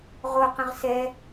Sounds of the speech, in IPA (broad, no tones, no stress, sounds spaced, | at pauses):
ʁ o q ə̃ ʁ s ɛ